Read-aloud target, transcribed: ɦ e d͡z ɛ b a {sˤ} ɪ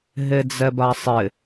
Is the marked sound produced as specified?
yes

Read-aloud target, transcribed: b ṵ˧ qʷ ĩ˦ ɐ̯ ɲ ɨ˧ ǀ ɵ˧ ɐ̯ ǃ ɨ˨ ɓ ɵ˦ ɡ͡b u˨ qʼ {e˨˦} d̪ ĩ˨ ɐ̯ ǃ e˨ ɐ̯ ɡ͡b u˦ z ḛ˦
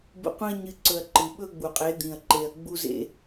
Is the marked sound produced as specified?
yes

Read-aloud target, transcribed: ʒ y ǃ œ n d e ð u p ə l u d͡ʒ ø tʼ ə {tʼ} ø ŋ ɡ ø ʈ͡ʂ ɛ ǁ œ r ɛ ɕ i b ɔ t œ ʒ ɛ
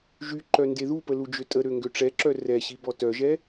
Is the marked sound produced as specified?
no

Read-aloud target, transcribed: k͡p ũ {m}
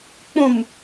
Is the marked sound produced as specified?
yes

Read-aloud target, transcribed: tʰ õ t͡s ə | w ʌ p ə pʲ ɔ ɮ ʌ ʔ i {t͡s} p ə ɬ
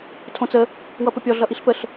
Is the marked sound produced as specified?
no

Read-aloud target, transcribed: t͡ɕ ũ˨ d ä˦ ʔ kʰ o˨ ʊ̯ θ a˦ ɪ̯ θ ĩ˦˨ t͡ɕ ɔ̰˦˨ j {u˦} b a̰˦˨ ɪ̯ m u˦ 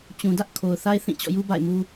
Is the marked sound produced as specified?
yes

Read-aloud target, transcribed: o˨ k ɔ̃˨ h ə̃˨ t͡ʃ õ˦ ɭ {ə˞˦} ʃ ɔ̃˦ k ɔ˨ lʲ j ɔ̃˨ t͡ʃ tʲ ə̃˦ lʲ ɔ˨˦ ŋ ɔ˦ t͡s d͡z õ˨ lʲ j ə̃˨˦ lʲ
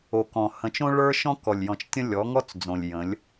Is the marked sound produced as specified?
yes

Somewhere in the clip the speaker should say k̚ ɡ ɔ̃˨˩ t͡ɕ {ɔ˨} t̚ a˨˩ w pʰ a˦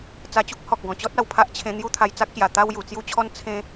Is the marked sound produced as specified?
no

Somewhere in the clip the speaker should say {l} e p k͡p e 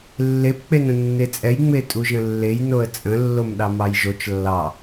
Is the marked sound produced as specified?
no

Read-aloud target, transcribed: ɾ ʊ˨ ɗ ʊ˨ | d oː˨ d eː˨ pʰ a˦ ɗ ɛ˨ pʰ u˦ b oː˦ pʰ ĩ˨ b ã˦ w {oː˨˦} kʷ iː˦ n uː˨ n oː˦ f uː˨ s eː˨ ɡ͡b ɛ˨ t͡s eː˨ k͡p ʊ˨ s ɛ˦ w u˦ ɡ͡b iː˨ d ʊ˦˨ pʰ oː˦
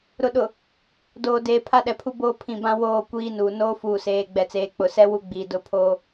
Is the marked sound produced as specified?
no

